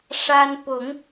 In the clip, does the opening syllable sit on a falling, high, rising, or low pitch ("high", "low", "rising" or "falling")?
high